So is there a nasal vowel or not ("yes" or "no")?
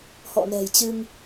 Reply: no